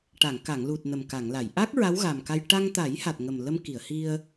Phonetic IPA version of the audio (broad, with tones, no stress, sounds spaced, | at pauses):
ʈ a˨˩˨ ŋ k a˨˩˨ ŋ l u˨˩ t̚ n ə˨˩ m k a˨˩˨ ŋ l a˨˩˨ j ʔ a˦˥ k̚ ɹ a˧˥ w ɣ a˨˩ m k a˧ j ʈ a˧ ŋ t̪ a˨˩˦ j h a˨˩ t̚ ŋ ə˨˩ m l ə˧ m k i˨˩˨ ə̯ h i˧ ə̯